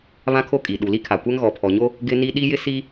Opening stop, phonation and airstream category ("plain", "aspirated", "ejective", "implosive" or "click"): aspirated